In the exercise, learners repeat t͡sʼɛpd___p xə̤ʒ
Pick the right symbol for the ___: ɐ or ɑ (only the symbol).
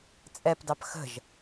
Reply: ɑ